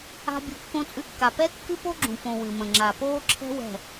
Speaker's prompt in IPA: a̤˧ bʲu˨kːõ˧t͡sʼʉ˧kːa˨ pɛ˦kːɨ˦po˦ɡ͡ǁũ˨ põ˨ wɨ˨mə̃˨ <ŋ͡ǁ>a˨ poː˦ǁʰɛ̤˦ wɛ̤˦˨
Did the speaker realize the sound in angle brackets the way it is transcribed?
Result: yes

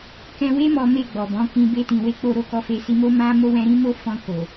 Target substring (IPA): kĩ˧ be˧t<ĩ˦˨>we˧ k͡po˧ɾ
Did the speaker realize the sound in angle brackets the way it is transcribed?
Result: no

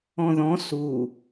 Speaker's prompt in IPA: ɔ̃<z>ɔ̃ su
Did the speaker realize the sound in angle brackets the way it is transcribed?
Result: no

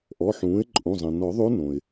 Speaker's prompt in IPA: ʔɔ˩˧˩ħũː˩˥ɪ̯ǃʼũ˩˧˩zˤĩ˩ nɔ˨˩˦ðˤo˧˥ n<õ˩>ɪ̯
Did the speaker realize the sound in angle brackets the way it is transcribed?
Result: yes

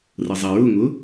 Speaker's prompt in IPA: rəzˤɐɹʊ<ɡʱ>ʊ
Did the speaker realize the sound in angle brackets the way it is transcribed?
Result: no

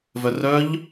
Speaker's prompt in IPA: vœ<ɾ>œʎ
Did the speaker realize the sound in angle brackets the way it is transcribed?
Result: no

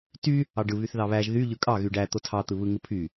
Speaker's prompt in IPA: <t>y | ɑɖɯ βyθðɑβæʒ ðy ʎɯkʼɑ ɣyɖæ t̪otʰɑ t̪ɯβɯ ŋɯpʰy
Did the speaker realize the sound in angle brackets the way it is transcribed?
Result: yes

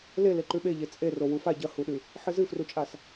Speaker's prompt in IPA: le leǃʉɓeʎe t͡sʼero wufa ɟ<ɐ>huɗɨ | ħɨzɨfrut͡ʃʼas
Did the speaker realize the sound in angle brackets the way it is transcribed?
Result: yes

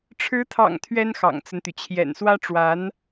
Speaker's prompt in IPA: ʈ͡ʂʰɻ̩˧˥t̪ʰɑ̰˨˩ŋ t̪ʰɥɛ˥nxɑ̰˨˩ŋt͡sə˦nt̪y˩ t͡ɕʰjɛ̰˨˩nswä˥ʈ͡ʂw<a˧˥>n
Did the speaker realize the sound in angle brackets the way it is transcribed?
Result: yes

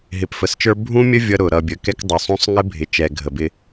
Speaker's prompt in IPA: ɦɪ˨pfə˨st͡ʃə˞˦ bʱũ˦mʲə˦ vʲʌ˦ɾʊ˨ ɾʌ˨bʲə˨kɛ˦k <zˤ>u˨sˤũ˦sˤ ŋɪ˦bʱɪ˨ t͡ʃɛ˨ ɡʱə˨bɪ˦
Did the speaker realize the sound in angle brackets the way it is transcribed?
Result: no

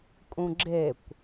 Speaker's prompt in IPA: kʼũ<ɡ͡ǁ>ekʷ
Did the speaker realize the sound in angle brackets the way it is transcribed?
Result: yes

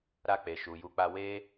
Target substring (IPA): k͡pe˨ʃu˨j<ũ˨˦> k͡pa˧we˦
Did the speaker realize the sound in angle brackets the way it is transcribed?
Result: no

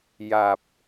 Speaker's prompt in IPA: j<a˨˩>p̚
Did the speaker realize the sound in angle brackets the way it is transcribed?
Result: yes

